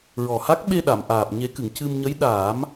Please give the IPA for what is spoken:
ɹɔ˨˩ha˦˥k̚ ɓe˧ɗa˨˩˨mʔaː˨˩p̚ ɲe˨˩˦kɨ˨˩˨ŋ cɨ˧m ɲə˧˥jɗaː˨˩˦m

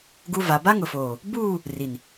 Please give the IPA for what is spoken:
ɡu˦va˨˦ ba˦ŋʊ˨foː˨ | buː˦˨ | ri˨n

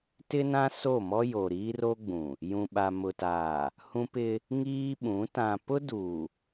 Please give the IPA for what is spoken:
tɪ˦nã˦ so˦˨mɔ˦ jo˨ɾiː˦ro˦ɡ͡bũ˨ | jũ˨ɓa˨mʊ˨taː˨ | hũ˦pɪ˦ | ŋiː˦ɓũ˨˦ tã˨pʊ˦du˨

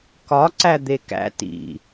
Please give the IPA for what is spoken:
kɒǀæ d̪ekæ̰ tḭ

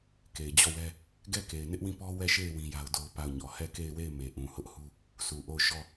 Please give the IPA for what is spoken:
ke˨ɪ̯d͡ʑɔ˦˨wɛ˦ | ɡɛ˦˨ ke˨ɪ̯nɪ˦ʔwĩ˦˨pɔ˦ wɛ˦˨ʃe˦˨ɪ̯ wĩ˦ja˦ʊ̯do˦ʊ̯ pa˦˨ʊ̯ɲɔ˨ hɛ˦˨ke˦˨ɪ̯we˦˨ɪ̯ me˨ʔũ˨hʊ˦ʔhu˦ | su˨ʔo˦˨ʊ̯ʃɔ˦˨

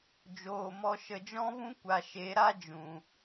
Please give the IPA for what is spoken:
d͡ʒoː˨mɔ˧ ʃə˨d͡ʒɔ̃˦vũ˦ kʷa˨ʃe˨˦ɾa˦ d͡ʒũ˨

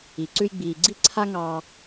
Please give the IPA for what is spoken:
i˩ ǀʉ˧jɡ͡biː˩ɡ͡ǀi˥ ǀʰa˥ŋɑː˧

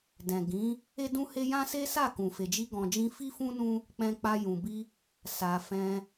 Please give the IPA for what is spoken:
dɛ̃˨ ɡĩ˨˦ | e˦dũ˦he˦ jã˦se˦ sa˦˨kũ˨fe˨d͡ʒi˧ ɡɔ̃˨d͡ʒĩ˧ fi˦fũ˦nũ˦ | k͡pɛ̃˧k͡pa˧ jũ˨bi˧ | sa˨fɛ̃˧

